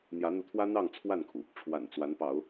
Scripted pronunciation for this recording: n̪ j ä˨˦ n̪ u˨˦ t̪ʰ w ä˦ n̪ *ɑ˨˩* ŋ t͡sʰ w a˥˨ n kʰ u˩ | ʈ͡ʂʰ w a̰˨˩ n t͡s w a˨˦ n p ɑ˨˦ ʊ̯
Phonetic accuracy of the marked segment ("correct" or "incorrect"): incorrect